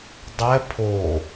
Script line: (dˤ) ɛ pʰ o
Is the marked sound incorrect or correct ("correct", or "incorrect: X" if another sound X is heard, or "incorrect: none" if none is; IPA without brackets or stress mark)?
correct